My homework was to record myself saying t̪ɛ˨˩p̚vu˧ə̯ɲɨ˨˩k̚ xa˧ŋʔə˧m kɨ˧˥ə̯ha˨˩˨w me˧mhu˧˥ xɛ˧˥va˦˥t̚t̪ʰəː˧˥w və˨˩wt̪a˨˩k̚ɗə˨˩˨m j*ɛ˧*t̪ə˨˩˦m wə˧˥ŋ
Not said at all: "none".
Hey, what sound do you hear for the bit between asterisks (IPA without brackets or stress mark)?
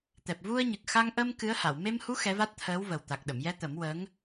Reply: ɛ˧